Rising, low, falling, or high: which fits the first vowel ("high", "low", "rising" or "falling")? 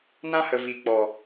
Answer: high